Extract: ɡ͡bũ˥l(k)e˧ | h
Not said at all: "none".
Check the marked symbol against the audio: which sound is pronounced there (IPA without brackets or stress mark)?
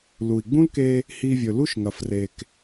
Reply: k